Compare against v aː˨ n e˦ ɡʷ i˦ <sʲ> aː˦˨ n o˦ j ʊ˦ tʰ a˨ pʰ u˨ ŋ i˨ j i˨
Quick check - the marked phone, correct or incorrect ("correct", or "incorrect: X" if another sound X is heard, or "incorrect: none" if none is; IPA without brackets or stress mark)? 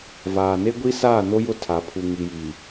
incorrect: s